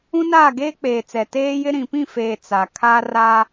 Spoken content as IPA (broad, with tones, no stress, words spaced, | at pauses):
ũ˦naː˦˨ɡeː˦ k͡peː˨t͡sɛ˨ teː˦jɪ˦ ɾĩ˨pĩ˦˨feː˨ t͡sa˨ kʰaː˦raː˦